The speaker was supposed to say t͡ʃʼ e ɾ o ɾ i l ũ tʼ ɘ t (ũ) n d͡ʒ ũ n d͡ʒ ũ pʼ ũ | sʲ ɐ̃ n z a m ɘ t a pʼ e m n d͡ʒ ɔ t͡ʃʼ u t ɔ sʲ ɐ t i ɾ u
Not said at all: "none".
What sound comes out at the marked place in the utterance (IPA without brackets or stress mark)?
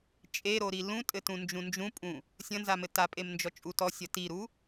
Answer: ũ